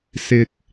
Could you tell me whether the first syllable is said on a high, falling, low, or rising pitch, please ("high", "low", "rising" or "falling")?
low